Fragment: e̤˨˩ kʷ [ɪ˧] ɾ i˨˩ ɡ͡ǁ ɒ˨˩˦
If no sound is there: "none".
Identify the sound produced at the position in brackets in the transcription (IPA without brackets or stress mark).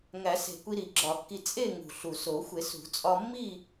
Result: i˧